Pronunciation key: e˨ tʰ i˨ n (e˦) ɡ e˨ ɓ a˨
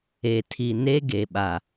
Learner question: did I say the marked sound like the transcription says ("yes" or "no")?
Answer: yes